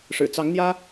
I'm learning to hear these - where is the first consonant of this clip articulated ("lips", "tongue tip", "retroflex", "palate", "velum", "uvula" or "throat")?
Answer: retroflex